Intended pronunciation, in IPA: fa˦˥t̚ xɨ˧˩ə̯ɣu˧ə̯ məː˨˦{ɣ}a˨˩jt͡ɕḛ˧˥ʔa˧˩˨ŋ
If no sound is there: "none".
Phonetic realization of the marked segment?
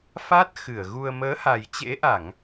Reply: h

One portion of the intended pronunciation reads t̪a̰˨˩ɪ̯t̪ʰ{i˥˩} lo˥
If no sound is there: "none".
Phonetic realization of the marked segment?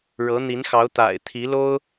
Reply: i˧˥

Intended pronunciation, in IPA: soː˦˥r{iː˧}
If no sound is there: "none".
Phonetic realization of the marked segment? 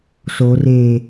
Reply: eː˧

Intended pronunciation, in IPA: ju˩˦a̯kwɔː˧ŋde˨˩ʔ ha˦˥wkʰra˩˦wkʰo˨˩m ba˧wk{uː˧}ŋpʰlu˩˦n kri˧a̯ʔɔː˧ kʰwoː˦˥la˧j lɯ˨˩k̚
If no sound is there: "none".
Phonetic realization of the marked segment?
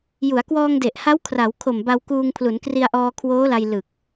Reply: uː˧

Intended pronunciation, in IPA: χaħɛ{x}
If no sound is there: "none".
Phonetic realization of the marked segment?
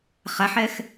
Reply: x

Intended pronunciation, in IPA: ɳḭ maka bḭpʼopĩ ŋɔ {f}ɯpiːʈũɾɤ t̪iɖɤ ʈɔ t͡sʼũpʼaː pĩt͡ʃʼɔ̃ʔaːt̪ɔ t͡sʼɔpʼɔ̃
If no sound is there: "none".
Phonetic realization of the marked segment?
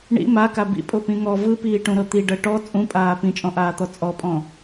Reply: v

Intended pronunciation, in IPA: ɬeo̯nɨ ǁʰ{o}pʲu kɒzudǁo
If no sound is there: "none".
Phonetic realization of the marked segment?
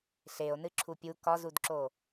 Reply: u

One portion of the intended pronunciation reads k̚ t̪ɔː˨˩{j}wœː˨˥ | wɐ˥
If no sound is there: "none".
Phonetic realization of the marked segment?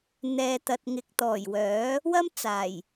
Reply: j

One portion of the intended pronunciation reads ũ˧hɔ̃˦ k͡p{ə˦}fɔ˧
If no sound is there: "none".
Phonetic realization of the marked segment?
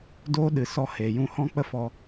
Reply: ə˦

